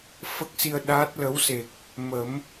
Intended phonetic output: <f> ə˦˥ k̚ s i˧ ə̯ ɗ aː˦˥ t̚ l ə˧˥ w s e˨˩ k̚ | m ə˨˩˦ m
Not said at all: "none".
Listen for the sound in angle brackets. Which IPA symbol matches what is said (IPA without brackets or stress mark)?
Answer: f